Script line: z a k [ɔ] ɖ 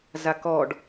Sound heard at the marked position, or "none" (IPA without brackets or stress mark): ɔ